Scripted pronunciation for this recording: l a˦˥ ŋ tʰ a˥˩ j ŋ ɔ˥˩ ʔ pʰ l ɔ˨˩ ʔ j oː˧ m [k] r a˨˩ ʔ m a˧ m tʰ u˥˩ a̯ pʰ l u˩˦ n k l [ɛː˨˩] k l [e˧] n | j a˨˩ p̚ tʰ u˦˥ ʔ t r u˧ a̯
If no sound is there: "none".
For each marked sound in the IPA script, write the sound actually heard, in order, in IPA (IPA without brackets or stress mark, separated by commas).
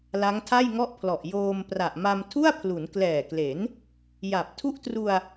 p, ɛː˨˩, e˩˦